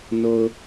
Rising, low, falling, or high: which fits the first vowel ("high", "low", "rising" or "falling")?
low